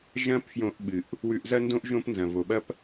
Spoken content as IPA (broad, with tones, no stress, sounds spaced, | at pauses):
ʒ ɐ̃˥ p f j õ˧ ʔ ɓ ɨ˩ ʔ | w ʉ˧ ʔ z ɐ˥ n d õ˥ ʔ ʒ õ˥ p n z ɐ̃˩ v o˩ ɓ ɐ˥ p